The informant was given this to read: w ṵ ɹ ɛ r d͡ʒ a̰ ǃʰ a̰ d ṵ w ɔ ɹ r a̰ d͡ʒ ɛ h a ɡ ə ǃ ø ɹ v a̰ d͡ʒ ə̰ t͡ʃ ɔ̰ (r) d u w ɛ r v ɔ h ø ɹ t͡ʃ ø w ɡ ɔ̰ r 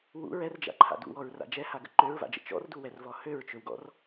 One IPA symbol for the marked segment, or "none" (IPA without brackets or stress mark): r